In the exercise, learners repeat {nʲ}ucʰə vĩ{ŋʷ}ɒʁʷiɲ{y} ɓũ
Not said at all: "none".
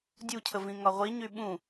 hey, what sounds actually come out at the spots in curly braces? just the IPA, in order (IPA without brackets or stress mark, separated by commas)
dʲ, ŋ, y